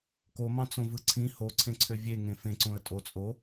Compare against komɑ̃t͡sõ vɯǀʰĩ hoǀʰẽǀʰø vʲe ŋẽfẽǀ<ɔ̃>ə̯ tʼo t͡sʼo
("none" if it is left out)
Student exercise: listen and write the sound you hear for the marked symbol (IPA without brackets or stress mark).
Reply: õ